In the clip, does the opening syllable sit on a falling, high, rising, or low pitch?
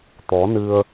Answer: rising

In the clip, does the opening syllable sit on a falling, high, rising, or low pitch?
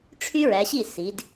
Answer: high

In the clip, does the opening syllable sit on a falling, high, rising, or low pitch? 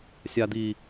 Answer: low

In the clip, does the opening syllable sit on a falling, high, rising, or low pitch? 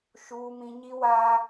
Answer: high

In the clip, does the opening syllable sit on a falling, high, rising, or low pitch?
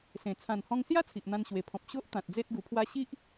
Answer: low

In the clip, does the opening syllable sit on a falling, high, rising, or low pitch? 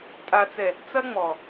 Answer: low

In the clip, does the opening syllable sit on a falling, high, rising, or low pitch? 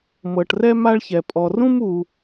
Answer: low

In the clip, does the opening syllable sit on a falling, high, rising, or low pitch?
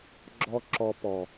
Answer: high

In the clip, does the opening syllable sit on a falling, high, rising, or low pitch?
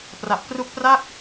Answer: low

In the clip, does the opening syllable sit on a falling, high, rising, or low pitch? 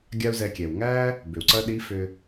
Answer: high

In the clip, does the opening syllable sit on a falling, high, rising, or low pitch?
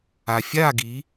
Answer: low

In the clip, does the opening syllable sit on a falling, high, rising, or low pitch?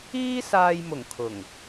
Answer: high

